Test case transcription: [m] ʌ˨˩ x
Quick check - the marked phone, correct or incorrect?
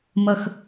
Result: correct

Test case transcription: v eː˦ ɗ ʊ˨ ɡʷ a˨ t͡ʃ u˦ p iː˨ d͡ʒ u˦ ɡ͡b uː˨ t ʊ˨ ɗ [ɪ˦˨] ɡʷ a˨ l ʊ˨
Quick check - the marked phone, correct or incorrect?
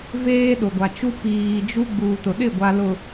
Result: correct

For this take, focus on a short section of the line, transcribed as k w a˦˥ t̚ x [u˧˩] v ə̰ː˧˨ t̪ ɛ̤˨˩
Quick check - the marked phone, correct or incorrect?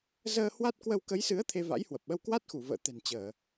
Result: correct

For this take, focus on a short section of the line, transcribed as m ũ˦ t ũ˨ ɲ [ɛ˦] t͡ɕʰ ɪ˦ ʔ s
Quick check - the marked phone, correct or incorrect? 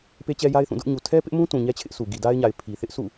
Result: correct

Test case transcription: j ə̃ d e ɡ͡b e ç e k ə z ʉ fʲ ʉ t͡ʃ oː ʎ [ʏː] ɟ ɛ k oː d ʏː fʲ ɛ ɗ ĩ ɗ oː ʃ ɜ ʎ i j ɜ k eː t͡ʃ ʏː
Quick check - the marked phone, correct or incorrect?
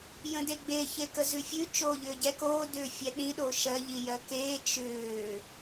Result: correct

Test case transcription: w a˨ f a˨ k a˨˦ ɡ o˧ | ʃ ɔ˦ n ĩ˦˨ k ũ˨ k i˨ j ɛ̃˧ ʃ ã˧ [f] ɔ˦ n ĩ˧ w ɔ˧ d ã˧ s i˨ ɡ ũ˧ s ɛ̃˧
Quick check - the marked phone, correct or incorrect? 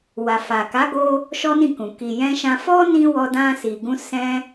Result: correct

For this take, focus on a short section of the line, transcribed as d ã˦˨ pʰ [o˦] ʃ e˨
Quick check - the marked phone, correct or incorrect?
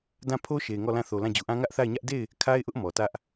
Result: correct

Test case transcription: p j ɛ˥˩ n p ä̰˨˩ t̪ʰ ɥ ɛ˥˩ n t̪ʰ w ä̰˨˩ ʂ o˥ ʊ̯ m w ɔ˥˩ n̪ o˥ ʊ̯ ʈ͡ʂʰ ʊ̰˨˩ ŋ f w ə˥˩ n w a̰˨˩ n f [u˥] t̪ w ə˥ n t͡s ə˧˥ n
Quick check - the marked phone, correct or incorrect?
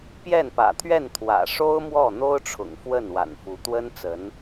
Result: incorrect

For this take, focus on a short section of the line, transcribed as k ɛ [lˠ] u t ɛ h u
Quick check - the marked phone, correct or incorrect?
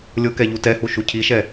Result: incorrect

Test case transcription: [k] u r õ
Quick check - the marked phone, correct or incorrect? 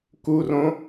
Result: correct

